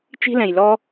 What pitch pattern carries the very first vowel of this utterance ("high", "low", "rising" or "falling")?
high